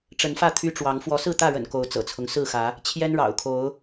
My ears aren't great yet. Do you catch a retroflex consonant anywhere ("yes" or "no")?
yes